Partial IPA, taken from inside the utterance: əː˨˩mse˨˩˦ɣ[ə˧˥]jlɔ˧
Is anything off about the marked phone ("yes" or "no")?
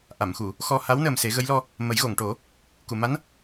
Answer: no